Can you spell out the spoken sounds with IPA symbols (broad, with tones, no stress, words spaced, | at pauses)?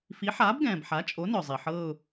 fi˩˥ ħaː˩˥bɡɛ̃ː˩b ħa˩˥t͡ʃʼo˩˥nœ˩zˤi˩ ħɤː˦˨ʊ̯